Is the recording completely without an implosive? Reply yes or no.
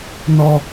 yes